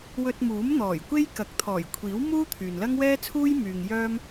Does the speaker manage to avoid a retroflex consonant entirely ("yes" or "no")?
yes